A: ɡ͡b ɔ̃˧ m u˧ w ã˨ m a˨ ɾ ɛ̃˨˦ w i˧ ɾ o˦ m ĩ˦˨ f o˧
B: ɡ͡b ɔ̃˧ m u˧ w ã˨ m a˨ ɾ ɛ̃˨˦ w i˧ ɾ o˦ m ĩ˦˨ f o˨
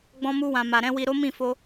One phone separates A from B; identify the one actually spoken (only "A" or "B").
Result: A